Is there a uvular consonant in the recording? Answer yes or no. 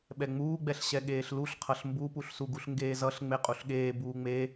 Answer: yes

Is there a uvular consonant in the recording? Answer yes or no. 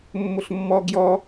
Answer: no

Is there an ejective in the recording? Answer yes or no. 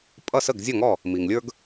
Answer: yes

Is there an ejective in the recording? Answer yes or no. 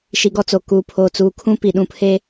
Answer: no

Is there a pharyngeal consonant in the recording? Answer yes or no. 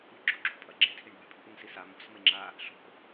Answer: no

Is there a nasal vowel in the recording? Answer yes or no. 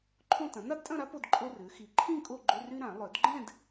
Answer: yes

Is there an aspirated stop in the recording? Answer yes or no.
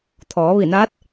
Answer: yes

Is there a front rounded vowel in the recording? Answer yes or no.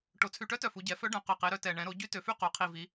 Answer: yes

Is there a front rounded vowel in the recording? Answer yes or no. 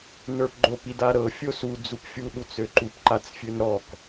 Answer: yes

